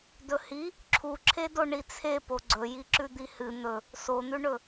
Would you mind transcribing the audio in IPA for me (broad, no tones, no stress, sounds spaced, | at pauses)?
d ɵ h i | ǁʰ u ǁʰ e d o ɳ i t͡sʰ e p o ɡ͡ǀ ɵ j i ǁ ʉ d̪ i h ɨ n̪ ɵ | s o n̪ ʉ ɳ ɵ